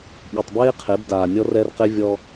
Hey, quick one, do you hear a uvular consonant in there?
yes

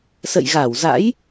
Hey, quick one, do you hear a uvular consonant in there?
no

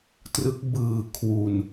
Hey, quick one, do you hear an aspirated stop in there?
yes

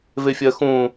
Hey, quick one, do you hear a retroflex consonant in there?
no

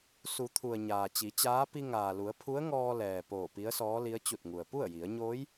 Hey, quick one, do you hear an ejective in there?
no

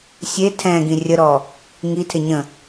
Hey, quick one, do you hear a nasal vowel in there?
yes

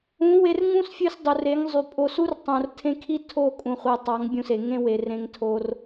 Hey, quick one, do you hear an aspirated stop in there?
yes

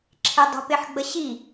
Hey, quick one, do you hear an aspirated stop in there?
yes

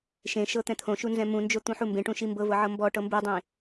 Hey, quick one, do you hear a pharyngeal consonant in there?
yes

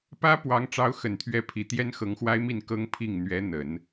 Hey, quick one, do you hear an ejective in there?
no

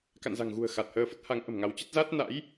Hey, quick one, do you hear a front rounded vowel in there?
no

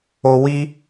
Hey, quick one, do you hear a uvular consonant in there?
no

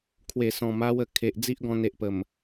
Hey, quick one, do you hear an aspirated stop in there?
yes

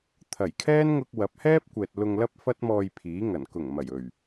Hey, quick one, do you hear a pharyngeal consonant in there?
no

